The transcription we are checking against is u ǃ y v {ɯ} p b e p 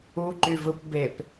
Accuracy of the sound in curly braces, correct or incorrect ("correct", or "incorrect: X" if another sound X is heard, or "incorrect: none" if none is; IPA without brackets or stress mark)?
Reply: correct